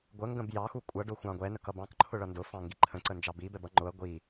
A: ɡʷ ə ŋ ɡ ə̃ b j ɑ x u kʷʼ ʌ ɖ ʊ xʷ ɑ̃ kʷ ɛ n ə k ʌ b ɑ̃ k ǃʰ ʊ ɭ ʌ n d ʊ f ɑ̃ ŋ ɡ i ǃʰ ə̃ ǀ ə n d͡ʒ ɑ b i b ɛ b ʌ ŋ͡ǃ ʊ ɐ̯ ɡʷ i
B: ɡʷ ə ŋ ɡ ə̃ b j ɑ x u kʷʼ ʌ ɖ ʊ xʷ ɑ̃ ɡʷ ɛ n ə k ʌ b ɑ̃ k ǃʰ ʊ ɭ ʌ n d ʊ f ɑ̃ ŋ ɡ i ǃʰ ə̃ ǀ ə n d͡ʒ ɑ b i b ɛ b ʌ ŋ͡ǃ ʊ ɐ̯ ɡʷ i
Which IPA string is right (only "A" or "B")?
B